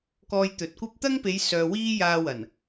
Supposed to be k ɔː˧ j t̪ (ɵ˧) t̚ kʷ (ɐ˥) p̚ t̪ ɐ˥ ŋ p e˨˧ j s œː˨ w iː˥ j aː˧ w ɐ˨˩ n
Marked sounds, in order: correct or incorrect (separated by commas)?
incorrect, correct